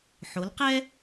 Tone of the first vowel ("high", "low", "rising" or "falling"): rising